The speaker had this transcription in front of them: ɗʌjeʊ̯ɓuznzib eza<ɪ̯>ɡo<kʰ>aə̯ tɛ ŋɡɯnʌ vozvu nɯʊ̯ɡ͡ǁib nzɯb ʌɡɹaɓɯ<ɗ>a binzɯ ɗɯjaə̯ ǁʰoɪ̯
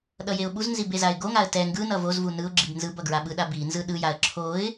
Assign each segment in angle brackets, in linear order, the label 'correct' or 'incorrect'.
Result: correct, incorrect: ŋ, correct

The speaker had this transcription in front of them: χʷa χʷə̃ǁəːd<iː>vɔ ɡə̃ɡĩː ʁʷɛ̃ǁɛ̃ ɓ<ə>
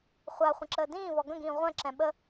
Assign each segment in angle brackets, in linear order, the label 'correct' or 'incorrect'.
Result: incorrect: ĩː, correct

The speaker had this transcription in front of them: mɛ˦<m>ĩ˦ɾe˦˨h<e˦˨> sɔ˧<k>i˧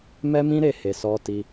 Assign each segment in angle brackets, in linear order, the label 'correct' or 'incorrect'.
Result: correct, incorrect: e˨, incorrect: t

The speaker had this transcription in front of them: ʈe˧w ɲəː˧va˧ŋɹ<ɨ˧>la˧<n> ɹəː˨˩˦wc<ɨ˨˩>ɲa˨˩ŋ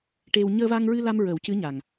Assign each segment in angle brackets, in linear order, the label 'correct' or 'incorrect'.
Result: correct, incorrect: m, incorrect: ɨ˧˥

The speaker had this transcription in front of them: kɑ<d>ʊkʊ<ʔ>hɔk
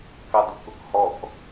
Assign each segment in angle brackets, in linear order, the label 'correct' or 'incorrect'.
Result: correct, incorrect: k

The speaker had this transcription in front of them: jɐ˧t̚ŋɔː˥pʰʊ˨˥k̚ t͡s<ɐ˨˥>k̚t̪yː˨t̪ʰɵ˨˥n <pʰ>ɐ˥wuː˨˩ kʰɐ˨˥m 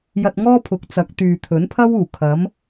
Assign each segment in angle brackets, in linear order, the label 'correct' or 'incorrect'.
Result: correct, correct

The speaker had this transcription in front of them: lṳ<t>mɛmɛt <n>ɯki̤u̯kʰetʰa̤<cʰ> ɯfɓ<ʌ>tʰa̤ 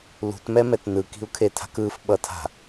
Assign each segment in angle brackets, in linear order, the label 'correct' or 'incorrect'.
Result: correct, correct, incorrect: k, correct

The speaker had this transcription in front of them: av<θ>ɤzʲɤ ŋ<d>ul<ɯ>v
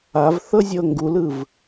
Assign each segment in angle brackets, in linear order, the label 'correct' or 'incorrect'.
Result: correct, incorrect: ɡ, correct

